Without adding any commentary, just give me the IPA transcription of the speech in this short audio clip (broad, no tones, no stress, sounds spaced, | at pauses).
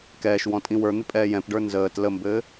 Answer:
k ɛː ʃ w ɔ̃ tʼ ĩ w ə˞ n̪ ɪ pʼ ɛː j ɛ̃ p ɖ ə˞ n z əː t l ə m b ɘː